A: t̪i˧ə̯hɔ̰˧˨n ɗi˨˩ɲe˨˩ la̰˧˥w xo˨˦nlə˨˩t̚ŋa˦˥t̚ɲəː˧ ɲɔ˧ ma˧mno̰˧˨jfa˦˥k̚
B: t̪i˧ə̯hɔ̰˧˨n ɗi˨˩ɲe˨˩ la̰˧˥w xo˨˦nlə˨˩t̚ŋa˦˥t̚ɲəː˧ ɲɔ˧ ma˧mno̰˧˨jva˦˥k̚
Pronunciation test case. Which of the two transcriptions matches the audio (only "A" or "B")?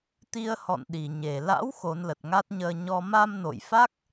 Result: A